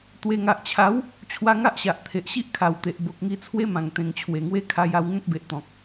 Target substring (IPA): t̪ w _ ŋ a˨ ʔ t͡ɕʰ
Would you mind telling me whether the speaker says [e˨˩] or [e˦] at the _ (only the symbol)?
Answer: e˨˩